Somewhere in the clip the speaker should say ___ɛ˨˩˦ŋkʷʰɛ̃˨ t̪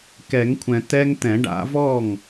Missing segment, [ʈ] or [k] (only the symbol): k